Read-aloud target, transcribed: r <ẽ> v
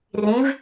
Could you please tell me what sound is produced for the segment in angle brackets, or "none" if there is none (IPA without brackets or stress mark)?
ĩ